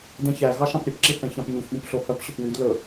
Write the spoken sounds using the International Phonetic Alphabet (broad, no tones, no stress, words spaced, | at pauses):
dɛ̃çæɣɑ ʃɑ̃pɾʲɵpǁi θɛ̃çɑ̃pɲuçɠũp ɬohœpɕɵp wyd lɵ